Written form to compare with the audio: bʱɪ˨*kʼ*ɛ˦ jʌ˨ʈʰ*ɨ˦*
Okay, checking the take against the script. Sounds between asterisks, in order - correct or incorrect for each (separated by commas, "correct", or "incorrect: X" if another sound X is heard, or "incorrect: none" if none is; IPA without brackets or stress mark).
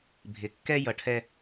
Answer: incorrect: kː, incorrect: ɛ˦